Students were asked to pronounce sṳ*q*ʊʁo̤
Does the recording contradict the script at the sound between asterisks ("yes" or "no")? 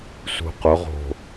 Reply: no